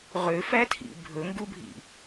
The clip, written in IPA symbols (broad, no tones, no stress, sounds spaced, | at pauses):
ʁ ø f æ tʰ ḭ bʱ ɵ ŋ ɡ u bʱ ḭ